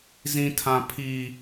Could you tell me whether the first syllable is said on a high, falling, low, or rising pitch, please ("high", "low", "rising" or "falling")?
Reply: high